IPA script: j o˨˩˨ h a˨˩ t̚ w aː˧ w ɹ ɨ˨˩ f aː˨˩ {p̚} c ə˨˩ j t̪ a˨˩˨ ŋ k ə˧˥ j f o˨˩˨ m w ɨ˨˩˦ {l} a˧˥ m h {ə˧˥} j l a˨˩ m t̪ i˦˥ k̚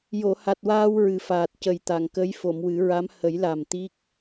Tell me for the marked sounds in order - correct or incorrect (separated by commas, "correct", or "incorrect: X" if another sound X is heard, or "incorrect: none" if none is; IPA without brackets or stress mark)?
incorrect: t̚, incorrect: ɹ, incorrect: ə˨˩˦